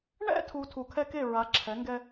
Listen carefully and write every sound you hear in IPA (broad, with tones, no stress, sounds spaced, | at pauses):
ɳ ɛ̰˦ tʰ u˨ tʰ u˨ kʰ ɛ˦ k e˦˨ ɹ a˨˦ ǁʰ ɛ˨˦ ŋ ɡ ɛ˦